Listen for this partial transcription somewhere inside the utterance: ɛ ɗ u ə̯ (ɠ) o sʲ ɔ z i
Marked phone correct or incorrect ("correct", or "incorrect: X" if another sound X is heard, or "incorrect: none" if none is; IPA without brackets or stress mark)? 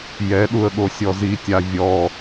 correct